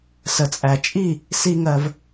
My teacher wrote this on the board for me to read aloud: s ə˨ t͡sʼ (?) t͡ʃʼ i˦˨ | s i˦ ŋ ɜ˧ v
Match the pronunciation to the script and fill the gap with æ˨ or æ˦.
æ˨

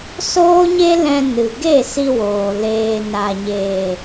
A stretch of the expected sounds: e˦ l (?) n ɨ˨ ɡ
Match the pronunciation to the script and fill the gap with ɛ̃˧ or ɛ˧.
ɛ̃˧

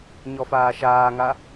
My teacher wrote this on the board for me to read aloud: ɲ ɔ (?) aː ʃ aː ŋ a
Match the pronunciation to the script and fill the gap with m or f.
f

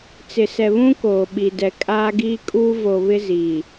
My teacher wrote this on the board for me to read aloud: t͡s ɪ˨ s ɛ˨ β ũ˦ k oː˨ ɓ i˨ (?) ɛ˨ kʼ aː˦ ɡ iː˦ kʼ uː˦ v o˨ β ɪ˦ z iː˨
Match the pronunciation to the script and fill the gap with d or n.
d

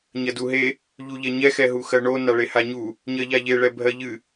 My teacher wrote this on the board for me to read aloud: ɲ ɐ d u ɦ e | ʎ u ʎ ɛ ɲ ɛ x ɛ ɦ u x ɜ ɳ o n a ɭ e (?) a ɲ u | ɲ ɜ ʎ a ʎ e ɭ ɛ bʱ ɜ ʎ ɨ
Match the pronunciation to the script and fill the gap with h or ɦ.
h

